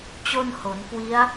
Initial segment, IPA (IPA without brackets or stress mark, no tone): t͡ɕ